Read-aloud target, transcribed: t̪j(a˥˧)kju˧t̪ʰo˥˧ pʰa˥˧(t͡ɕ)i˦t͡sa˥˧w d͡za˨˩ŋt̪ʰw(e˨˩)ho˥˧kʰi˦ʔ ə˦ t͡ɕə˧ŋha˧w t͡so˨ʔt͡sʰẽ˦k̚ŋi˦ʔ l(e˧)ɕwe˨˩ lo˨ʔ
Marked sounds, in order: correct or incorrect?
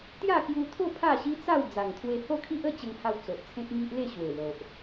correct, incorrect: ɕ, incorrect: e˧, incorrect: e˥˧

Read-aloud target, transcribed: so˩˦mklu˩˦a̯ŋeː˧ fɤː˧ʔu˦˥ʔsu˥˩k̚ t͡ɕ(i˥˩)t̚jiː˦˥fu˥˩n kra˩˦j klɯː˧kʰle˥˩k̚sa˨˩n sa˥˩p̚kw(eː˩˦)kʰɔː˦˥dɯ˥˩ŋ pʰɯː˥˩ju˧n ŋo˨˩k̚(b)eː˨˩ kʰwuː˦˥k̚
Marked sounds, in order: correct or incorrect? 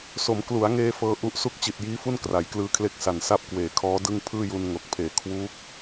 incorrect: i˨˩, correct, incorrect: pʰ

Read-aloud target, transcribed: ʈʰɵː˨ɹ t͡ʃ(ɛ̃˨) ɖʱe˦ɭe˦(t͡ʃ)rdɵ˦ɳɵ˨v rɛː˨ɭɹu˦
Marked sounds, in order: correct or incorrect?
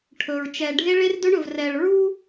incorrect: ɛ˨, incorrect: none

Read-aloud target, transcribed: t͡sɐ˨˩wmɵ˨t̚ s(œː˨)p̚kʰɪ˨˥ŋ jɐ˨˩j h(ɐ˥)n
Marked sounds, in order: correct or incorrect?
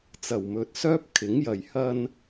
incorrect: œː˥, incorrect: ɐ˧

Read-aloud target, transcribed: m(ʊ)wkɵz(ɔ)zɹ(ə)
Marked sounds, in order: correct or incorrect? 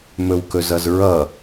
incorrect: ɵ, incorrect: ʌ, incorrect: ʌ

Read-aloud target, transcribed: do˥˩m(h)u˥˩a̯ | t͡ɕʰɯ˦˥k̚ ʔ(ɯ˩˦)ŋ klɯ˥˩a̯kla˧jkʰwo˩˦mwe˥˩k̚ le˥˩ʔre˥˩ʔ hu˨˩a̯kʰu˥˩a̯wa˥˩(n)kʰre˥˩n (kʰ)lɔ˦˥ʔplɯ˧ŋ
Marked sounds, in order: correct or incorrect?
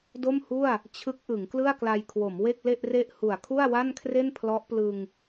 correct, correct, correct, incorrect: pʰ

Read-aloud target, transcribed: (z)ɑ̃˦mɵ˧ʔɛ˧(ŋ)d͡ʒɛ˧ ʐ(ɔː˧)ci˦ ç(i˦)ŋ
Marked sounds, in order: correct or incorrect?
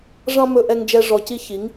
incorrect: ʐ, correct, incorrect: ɔ˧, incorrect: i˨˦

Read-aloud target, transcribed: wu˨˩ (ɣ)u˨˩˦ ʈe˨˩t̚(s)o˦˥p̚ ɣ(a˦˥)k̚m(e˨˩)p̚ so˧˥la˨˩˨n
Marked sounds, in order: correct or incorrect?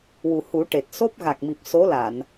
incorrect: h, correct, incorrect: a˨˩, incorrect: i˨˩

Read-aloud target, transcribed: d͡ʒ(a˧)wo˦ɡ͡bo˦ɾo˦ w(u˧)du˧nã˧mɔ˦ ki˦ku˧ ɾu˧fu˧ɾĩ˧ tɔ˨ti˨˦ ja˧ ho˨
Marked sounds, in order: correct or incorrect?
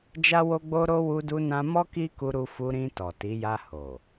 incorrect: a˦, correct

